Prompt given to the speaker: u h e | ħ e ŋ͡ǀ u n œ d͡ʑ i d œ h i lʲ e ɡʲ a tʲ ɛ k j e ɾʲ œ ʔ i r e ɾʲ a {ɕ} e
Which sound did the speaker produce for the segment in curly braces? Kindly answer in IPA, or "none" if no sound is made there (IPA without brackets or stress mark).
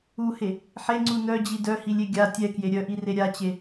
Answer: t͡ɕ